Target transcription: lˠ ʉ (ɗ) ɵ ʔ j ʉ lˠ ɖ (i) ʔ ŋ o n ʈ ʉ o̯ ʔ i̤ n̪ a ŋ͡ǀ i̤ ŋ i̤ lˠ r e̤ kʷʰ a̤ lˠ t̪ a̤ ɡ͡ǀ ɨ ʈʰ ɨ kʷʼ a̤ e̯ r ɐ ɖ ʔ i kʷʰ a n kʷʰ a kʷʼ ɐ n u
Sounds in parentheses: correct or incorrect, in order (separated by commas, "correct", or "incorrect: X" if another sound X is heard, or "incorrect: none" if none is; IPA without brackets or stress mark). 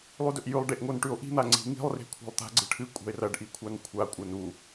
incorrect: d, incorrect: e